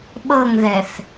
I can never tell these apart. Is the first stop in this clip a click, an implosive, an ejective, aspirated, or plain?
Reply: implosive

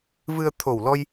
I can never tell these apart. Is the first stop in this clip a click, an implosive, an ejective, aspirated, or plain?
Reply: aspirated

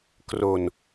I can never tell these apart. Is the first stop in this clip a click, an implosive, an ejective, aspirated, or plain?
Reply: plain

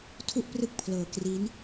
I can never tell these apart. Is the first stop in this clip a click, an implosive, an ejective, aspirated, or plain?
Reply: aspirated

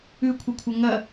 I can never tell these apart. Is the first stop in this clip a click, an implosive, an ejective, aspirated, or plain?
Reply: aspirated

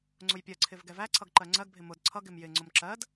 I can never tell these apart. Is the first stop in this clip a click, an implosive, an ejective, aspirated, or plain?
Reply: click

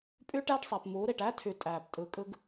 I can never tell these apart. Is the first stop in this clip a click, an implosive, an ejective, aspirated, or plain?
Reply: ejective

